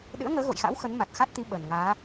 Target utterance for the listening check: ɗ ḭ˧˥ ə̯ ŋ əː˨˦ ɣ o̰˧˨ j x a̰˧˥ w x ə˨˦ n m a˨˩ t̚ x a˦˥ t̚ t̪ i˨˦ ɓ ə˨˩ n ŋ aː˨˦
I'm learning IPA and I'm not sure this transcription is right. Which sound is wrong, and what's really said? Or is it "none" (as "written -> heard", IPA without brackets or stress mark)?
ḭ˧˥ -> ɨ̰˧˥